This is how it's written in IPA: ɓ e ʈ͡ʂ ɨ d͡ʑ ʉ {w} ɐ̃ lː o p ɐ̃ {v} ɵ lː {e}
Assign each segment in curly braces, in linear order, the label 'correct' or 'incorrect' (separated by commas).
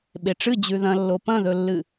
incorrect, incorrect, incorrect